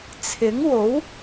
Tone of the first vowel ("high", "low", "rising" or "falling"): rising